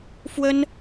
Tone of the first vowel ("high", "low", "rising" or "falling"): high